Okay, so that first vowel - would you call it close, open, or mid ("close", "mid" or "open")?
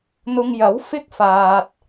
close